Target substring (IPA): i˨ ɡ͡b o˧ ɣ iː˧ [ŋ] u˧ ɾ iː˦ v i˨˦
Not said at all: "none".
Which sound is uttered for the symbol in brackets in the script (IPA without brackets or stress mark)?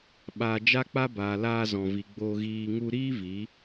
ŋ